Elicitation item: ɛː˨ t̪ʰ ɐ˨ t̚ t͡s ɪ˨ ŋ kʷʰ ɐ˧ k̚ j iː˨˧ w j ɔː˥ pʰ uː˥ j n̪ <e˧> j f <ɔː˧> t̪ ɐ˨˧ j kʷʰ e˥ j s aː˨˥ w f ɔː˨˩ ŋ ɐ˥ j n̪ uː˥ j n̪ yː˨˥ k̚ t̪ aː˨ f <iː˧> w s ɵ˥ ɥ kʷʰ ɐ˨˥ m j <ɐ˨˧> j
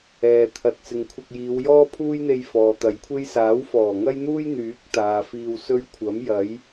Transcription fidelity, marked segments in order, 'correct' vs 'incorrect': correct, incorrect, correct, incorrect

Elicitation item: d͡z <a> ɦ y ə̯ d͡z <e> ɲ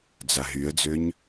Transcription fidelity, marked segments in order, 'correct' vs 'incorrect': correct, incorrect

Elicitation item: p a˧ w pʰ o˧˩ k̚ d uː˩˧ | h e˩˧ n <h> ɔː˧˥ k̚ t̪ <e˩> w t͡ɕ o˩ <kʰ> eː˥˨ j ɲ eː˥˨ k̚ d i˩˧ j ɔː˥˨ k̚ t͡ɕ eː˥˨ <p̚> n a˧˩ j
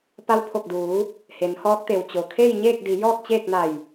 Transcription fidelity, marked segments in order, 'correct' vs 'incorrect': correct, correct, correct, incorrect

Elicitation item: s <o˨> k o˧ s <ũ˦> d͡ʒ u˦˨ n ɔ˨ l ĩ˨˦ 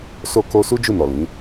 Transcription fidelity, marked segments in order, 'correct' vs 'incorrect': incorrect, incorrect

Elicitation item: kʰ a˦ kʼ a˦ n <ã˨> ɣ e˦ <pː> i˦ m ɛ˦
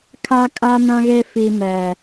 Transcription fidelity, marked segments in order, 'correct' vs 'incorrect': incorrect, incorrect

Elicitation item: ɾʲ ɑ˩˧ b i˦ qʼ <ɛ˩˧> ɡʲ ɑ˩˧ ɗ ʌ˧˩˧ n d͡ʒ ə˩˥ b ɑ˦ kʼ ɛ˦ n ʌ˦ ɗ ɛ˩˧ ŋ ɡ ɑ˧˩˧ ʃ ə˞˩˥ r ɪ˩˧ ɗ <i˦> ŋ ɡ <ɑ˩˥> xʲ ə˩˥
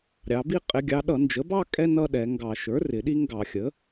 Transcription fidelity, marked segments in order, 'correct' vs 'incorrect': incorrect, correct, incorrect

